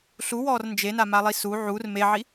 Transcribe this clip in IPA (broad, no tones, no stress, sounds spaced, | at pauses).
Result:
ɬ u w ɔː r n d͡ʒ e n a m a lˠ i s u ʕ u r m e ʕ i